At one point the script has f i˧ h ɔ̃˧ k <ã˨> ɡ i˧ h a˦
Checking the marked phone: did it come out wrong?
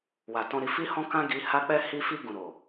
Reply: yes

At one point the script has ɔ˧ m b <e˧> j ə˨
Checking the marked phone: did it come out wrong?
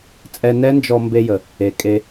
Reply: no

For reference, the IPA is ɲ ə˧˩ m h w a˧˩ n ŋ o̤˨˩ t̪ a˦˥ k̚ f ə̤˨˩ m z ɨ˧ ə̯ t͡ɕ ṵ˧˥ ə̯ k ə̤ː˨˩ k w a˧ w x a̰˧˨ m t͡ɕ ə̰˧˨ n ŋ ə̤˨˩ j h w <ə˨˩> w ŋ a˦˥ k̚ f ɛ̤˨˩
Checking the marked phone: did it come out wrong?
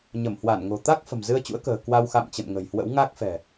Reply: yes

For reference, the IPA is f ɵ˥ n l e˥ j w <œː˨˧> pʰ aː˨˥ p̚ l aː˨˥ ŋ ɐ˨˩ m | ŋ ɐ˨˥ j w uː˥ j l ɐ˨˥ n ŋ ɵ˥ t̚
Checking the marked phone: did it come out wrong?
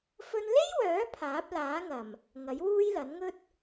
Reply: yes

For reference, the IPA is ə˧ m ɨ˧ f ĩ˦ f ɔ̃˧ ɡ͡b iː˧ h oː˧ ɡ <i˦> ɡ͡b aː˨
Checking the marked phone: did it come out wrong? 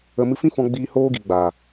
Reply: yes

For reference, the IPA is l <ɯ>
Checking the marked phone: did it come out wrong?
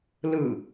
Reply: no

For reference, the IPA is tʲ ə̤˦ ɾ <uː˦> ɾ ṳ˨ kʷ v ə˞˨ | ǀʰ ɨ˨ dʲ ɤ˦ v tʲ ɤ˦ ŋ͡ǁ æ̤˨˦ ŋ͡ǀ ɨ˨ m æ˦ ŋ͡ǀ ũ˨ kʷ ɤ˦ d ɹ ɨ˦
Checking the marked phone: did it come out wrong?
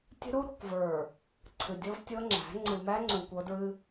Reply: yes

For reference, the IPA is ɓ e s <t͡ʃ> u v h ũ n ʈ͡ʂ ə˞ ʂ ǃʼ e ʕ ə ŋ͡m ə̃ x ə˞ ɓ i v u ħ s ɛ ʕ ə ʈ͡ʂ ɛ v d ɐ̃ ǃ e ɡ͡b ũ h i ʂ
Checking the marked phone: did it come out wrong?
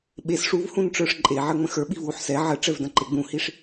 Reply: yes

